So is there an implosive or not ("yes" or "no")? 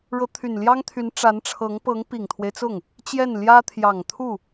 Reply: no